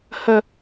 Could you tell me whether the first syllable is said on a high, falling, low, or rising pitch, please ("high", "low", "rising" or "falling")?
low